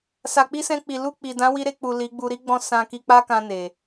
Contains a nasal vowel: yes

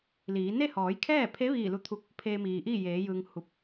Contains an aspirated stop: yes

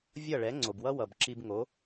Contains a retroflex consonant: yes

